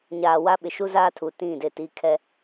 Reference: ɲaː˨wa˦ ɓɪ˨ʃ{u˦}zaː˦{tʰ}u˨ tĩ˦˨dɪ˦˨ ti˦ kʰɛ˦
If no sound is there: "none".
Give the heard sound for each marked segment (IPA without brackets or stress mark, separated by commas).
u˦, tʰ